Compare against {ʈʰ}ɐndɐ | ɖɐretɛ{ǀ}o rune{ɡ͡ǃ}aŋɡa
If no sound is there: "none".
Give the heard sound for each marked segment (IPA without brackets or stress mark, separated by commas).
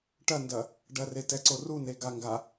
ʈ, ǀ, ɡ